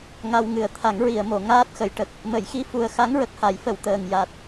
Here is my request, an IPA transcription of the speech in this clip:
ŋ a˧ w ŋ ɨ˨˩ ə̯ t̪ʰ a˨˩˦ ŋ ɹ i˨˩˨ ə̯ m o˨˩˨ ŋ aː˦˥ t̚ x ə˨˩˨ j ʈ ə˨˩ k̚ | m ə˨˩˨ j x i˧ f u˨˩ ə̯ x a˧˥ ŋ ɹ ə˨˩ k̚ h a˨˩˦ j f ə˨˩˨ w t̪ əː˨˩ ŋ j a˨˩ t̚

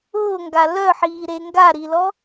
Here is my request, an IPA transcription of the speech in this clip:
ʊː ŋ ɡ a l œ ħ iː ɾ e ŋ ɡ a ɾ i l ɔ

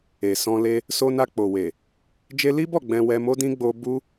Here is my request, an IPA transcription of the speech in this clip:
e˨ s ɔ̃˧ l e˦ | s o˧ n a˧ k͡p o˨ w e˨ | d͡ʒ e˧ l i˦ b ɔ˦˨ ɡ͡b ɛ̃˧ w ɛ˧ m o˦ d ĩ˦ ɡ͡b o˧ b u˦

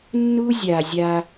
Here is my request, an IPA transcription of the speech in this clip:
nː u˦ zʲ a˨ zʲ a˦

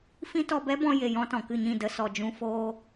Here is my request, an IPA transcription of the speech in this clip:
f ĩ˦ t ɔ˧ b ɛ˦ b ɔ̃˧ j e˨ j ɔ̃˧ t ɔ̃˨ k ɨ˦˨ ɲ ĩ˦˨ d ə˧ s ɔ˨ d͡ʒ ũ˧ f oː˧

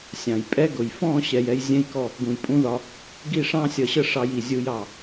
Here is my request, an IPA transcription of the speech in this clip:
sʲ ɑ̃˨ j pʼ ɛ˦ ɡ ʊ˨ j f ɔ̃˦˨ ɕ ɛ˨ j ɛ˧ j zʲ ɛ̃˦ j k ɔ˦˨ | ɡ ũ˨ j pʼ ũ˦ ð ɒ˧ | ɡ i˦˨ ʂ ɑ̃˦ sʲ ʌ˧ ɕ ə˦ ʂ ɑ˧ j i˨ zʲ u˨ j ɑ˨

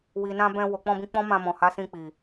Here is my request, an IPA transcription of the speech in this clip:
w i˨ n ã˧ b ɛ̃˧ w o˨ k͡p ɔ̃˧ b ĩ˧ k͡p ɔ̃˦ m ã˧ m ɔ̃˨ h a˨˦ s ĩ˧ k͡p i˨

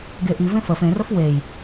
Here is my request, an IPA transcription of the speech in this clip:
ɡ e ʔ i v ẽ f ə f ẽ r ə f w e j

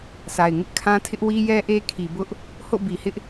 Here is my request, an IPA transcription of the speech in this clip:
sʰ a˨ ɪ̯ ŋ ɪ˦ ʔ kʰ ã˦ tʰ ɪ˦ ʔ w i˦ j ɛ˦ ʔ e˦ kʰ i˨ b ʊ˦ ʔ | h o̰˦˨ b i˨ h ɪ˦ ʔ

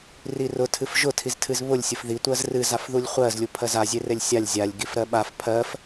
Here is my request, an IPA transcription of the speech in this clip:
r i r ʊ tʰ ɨ f ʒ ʊ tʰ i z tʰ ɨ z β ʊ lʲ sʲ ʊ f ð i tʷ ɜ z r ɨ z a f ð u lʲ χʷ ɜ z lʲ u pʰ ɜ z a zʲ e r e lʲ sʲ a lʲ zʲ a lʲ ɡ i f ɾ ɜ ɓ a f pʰ ɜ f

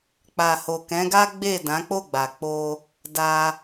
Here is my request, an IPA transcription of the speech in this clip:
k͡p a˨ h o˨ k ɛ̃˨˦ ɡ a˦ ɡ͡b e˦˨ d ã˨˦ k͡p o˦˨ ɡ͡b a˨ k͡p o˧ | d a˧

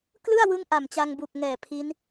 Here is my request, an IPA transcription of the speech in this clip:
k l ɯ˥˩ a̯ w ɯ˦˥ ŋ ʔ a˨˩ m t͡ɕ a˧ ŋ b u˨˩ k̚ ŋ ɛː˨˩ pʰ i˦˥ n

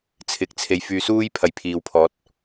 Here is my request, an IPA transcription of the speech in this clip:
t͡sʰ ɪ˨˥ k̚ t͡sʰ e˨ j f yː˧ s uː˥ j pʰ ɐ˨ j pʰ iː˨ w pʰ ɔː˨˥ t̚

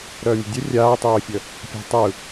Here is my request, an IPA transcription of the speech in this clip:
ɾ œː mʲ ə̤ dʲ ə rʲ aː tˤ œː fʲ ə | pʲ a̤ tˤ ɯ

